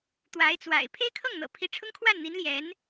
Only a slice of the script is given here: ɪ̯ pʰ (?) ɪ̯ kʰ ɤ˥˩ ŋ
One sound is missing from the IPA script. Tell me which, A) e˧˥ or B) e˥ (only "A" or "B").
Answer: B